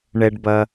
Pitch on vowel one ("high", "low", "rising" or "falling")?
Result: low